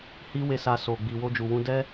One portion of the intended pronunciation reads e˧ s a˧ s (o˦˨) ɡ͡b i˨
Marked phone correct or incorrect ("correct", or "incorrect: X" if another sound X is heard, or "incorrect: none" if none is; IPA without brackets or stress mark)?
incorrect: o˨